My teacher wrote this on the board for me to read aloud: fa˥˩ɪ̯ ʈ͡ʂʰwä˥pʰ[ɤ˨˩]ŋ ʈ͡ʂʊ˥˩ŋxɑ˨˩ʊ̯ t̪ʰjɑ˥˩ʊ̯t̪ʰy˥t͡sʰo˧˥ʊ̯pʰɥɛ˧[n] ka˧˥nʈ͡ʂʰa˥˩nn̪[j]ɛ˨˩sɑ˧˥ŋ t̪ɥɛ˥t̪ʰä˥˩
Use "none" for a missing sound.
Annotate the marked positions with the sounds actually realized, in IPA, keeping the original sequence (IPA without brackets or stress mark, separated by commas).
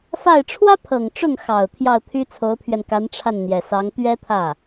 ɤ˨˩, n, j